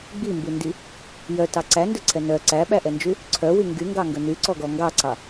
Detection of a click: present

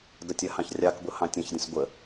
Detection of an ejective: absent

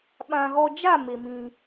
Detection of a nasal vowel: present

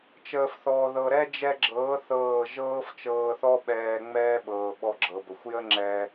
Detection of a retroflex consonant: absent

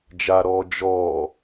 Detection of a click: absent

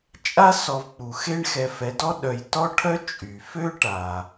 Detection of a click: absent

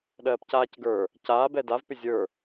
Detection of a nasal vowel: absent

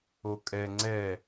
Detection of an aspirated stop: absent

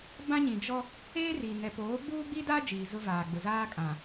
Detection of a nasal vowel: present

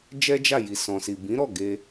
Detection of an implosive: absent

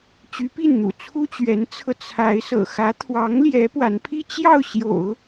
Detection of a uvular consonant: absent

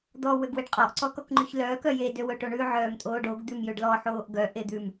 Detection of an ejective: present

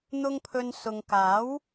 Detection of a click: absent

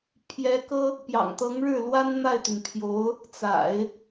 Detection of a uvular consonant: absent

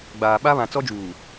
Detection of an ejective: absent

